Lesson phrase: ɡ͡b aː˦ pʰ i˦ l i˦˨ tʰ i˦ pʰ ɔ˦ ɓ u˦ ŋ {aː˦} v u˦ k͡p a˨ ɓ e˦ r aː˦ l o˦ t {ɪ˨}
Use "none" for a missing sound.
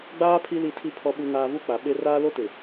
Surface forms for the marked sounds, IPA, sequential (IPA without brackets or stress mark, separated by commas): aː˦, ɪ˨